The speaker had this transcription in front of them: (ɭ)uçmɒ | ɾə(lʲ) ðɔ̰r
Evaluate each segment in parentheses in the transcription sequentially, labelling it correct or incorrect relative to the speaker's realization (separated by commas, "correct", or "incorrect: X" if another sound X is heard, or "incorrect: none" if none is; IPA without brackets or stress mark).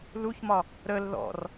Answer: incorrect: l, incorrect: l